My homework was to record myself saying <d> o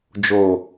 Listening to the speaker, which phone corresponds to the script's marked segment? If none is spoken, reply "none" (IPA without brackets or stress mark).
d͡ʒ